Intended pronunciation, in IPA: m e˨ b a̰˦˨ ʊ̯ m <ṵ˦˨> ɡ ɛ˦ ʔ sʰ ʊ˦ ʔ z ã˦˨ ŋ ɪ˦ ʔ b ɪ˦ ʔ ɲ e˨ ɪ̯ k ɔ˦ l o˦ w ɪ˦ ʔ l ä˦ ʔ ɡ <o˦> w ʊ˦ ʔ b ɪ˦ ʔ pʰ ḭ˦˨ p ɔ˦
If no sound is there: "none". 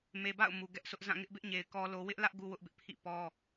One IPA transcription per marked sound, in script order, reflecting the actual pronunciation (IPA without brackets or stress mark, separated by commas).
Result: u˨, u˦